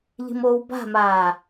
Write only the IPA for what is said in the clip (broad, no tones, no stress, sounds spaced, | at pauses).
ʎ i̤ m oː w b a̤ m aː